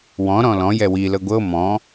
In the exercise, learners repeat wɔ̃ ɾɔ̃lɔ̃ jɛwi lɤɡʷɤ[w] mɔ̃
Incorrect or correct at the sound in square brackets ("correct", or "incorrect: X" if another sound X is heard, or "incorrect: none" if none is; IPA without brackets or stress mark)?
incorrect: none